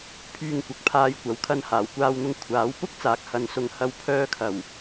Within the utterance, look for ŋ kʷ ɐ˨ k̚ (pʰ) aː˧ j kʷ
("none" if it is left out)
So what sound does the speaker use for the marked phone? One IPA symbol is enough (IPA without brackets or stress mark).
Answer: pʰ